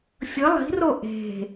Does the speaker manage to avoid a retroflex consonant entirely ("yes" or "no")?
yes